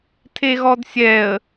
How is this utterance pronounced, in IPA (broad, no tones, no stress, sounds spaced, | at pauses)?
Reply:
tʰ e ɣ ɔ d sʲ ɛ ə̯